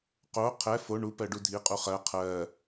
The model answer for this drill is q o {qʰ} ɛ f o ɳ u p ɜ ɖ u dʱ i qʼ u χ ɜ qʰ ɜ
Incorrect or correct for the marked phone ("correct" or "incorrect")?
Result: correct